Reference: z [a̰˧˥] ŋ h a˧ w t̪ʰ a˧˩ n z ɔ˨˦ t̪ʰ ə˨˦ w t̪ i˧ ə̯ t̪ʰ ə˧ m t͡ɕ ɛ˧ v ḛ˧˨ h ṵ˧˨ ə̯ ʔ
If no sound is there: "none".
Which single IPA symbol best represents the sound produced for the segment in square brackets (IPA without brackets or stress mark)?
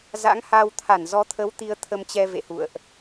a̰˧˥